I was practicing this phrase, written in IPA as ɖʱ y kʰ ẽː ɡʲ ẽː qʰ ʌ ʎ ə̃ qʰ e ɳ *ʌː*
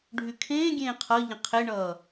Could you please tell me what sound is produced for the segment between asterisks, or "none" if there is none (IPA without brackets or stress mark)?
ʌː